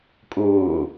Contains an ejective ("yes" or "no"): yes